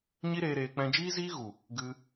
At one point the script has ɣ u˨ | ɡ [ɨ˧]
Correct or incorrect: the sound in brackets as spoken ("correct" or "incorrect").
correct